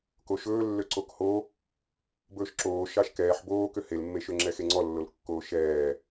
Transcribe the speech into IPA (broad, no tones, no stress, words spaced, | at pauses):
koʃɵː lːøǀokho | bɵːʃǁoːʃɑʃ kɛːħ boːkø helmːeʃø ŋ͡ǁɛxeŋ͡ǀɔlːol kːoːʃɛː